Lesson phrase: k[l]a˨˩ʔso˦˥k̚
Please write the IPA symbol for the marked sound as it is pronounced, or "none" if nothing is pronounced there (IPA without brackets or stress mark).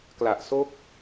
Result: l